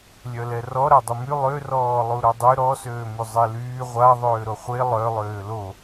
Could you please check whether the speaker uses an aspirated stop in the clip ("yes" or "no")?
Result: no